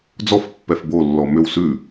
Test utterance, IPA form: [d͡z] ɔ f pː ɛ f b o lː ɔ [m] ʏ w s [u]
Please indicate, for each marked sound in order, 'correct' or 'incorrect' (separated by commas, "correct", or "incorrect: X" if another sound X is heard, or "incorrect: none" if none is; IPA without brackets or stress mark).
correct, correct, incorrect: ʉ